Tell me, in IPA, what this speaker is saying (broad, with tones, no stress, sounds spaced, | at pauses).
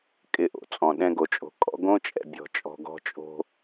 kʼ ɪ˦˨ ʔ o̰˨ t͡sʼ ɔ̃˨ ɗ ɛ̃˦ ɡ o˨ t͡ʃʼ o̤˨ kʼ ɔ̰˦ ɡ õ˦ t͡ʃʼ ɛ̰˨ bʲ ɔ̤˨ t͡ʃʼ ɔ̤˨ ɡ ɔ̤˦ t͡ʃʼ o̤˦